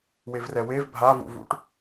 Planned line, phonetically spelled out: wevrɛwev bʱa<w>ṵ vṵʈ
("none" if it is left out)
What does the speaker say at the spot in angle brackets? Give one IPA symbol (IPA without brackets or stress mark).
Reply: v